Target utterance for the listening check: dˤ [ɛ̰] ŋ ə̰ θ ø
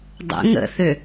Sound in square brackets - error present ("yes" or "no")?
yes